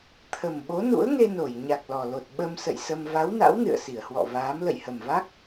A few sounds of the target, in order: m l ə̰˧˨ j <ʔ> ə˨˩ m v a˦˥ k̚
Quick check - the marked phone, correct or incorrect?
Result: incorrect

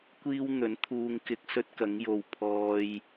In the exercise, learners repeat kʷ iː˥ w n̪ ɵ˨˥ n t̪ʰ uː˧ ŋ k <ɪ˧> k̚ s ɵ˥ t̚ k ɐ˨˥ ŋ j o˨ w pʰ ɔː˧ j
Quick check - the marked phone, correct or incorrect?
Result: correct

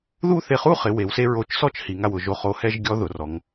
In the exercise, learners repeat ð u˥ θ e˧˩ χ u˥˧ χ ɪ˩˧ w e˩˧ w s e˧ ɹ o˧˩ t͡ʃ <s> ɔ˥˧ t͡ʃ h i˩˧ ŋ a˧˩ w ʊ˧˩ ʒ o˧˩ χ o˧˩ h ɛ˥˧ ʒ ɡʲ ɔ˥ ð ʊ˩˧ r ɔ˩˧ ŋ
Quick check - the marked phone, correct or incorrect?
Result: correct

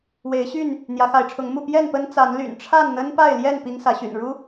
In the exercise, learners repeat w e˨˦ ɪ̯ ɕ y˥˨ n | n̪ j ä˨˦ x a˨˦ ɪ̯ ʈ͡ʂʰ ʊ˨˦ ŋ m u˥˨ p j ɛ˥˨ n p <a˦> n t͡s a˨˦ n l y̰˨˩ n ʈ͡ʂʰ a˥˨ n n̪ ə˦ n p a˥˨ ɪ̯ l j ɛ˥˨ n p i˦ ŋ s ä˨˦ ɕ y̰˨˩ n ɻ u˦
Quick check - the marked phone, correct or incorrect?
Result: incorrect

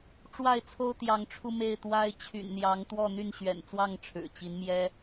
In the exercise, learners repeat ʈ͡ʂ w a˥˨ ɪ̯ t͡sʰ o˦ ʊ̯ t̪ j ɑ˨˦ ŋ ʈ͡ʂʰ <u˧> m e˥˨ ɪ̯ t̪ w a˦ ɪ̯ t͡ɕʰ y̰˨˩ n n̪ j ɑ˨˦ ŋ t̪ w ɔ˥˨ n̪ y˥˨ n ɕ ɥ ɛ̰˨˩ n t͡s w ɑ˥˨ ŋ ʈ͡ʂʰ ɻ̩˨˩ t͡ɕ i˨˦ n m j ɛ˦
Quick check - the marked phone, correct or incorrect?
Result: correct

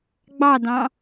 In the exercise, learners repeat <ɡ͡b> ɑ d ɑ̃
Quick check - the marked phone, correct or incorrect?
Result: correct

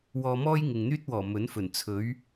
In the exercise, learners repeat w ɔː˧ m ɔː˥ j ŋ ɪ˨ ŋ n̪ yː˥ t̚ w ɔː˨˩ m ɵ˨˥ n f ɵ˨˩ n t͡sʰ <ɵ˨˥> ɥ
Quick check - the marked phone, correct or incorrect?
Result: correct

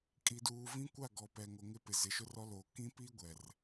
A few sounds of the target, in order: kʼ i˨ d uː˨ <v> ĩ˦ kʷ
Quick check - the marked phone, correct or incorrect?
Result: correct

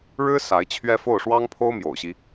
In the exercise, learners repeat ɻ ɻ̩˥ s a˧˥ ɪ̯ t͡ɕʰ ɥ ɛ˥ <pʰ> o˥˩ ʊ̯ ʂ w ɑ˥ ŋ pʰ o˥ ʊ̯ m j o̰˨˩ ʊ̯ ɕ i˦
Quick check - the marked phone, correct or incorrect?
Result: incorrect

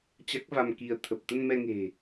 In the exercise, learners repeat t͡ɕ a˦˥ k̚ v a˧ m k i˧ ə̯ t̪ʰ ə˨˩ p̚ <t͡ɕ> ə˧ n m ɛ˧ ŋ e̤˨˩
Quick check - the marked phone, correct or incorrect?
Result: incorrect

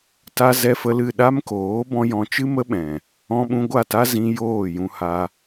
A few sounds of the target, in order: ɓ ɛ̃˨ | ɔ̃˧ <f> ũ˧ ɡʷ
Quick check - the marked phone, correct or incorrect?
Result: incorrect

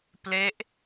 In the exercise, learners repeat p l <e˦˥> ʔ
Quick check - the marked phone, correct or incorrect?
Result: correct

